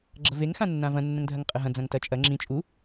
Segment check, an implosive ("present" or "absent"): absent